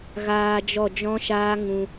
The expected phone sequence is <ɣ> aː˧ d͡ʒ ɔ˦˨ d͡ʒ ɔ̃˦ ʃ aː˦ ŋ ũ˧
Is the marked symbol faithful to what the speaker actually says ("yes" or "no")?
yes